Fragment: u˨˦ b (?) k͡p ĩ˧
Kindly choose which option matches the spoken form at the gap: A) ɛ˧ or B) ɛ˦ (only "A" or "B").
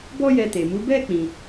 B